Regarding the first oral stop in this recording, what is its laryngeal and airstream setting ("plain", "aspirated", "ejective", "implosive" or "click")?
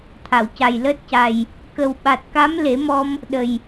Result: aspirated